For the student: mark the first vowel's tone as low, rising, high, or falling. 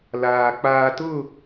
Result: low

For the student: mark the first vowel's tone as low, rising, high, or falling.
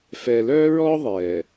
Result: low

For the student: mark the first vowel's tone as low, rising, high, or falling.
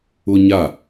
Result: high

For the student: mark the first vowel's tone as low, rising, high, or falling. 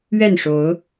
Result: falling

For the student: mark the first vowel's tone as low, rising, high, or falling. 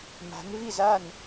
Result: rising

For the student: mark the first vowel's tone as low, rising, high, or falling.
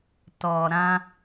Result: low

